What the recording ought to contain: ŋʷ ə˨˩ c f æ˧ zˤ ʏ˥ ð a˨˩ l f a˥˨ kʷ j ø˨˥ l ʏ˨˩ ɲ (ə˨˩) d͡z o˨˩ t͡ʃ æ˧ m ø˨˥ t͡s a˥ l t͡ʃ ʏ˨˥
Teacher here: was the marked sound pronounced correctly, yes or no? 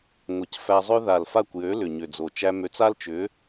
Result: no